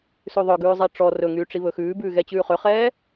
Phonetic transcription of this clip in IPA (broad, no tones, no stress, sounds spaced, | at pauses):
s ʉ ðˤ œ ɡ ʉː zˤ i ʈ͡ʂ ɔ r ɵ ŋ yː ʈ͡ʂ i β ɵ x ʉː b ʉː ɣ ɛ t͡ɕ ʉː χ ø χ ɛː